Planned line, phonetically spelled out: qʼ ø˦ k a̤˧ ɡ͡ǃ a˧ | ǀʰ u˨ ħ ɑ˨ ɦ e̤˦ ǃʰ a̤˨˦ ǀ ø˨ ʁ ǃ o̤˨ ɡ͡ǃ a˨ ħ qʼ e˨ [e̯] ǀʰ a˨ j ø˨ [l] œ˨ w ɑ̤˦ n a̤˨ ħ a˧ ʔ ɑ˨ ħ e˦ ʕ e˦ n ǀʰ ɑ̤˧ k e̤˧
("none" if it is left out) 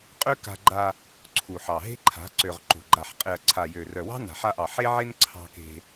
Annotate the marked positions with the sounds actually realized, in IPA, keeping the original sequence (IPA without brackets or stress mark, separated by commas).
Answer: ɐ̯, r